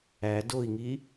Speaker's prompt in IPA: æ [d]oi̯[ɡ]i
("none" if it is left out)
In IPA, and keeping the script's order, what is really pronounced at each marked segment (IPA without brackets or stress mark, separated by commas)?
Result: d, ŋ